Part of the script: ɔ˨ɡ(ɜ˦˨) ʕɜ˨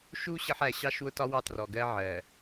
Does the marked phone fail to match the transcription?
yes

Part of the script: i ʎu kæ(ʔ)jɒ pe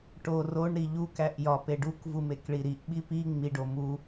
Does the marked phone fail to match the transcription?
no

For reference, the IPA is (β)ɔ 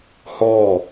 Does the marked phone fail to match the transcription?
yes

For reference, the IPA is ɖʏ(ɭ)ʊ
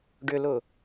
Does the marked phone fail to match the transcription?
yes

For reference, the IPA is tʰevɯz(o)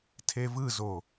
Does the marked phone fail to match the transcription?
no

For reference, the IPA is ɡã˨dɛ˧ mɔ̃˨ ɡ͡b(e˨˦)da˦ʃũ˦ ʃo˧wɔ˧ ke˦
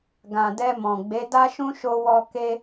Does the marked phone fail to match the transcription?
no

